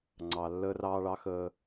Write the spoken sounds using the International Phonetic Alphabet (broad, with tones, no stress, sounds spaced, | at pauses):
ŋ͡ǀ ɑ˨ lː əː˦ r ɑː˦ ɭ ɑ˦ x əː˦